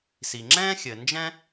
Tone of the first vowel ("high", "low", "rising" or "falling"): low